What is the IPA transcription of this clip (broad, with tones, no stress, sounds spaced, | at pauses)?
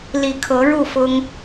l i˨˩ kʰ ɤ˨˦ ɻ u˥˨ f ʊ˦ ŋ